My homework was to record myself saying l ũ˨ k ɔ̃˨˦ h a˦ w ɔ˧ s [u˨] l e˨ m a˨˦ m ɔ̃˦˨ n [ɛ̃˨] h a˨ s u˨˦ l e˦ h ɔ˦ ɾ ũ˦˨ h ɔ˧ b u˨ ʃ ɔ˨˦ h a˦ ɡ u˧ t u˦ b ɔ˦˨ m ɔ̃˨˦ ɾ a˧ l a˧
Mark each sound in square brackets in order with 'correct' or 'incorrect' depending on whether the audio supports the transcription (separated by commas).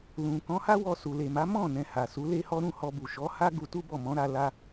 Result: correct, correct